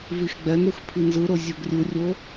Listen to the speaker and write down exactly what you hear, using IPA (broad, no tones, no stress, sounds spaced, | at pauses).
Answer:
v i x ɡ͡b ɛ n ɾ u x pʰ i n z ɯ ɾ o zʲ o ɡ rʲ u rʲ o